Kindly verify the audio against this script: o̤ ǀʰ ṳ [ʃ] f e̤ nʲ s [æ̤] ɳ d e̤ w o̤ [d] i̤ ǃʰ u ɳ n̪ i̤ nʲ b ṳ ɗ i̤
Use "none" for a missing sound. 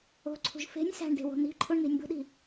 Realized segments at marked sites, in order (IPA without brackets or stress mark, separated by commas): ʒ, æ̤, n̪